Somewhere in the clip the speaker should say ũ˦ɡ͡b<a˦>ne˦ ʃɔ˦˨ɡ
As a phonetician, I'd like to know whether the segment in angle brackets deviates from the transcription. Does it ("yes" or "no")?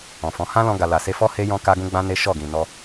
yes